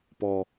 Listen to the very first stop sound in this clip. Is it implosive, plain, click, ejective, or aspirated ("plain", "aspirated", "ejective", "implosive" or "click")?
plain